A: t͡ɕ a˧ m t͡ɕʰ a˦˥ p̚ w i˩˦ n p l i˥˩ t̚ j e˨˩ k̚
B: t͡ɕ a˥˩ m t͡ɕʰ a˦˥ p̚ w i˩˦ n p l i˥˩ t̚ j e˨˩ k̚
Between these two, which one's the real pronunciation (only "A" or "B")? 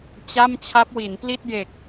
B